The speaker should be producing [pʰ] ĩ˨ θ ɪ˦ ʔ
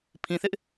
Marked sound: correct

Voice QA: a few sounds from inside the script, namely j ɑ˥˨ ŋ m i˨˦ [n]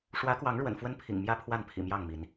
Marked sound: correct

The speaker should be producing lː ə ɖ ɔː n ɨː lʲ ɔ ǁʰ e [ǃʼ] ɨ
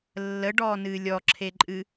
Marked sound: correct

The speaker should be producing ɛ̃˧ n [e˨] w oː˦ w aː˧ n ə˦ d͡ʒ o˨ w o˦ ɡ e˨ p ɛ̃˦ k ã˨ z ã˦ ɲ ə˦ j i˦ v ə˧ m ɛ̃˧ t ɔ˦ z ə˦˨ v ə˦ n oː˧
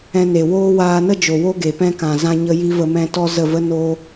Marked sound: correct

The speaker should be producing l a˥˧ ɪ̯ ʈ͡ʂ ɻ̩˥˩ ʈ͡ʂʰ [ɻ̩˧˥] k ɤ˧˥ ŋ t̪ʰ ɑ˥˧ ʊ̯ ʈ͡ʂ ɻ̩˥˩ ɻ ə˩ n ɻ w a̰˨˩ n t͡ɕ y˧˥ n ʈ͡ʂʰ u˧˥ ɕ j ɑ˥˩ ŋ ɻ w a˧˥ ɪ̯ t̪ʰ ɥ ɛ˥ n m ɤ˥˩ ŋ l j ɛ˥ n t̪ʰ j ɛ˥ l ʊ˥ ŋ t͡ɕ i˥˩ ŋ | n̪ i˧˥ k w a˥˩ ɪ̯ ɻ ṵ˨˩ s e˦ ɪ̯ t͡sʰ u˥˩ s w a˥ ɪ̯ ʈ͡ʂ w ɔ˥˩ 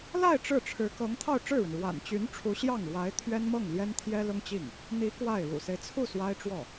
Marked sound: correct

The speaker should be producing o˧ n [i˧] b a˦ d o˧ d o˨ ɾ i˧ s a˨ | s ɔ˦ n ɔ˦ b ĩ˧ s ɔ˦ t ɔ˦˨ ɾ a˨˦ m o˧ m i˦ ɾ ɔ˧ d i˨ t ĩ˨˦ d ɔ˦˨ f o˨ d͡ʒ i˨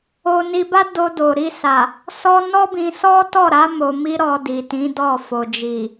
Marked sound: correct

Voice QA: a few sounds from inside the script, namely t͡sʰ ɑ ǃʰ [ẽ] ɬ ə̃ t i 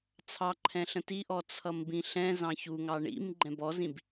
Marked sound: incorrect: ɛ̃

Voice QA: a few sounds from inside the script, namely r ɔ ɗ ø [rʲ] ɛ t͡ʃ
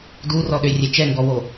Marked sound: correct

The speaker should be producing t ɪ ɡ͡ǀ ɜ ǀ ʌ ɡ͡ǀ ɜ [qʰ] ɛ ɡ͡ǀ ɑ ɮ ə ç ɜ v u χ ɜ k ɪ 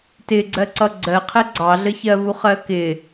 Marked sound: correct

